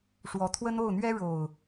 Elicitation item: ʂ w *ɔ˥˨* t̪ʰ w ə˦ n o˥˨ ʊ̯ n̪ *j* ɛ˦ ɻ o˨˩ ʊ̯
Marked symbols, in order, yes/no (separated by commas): no, no